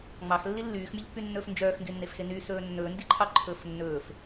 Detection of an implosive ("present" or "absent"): absent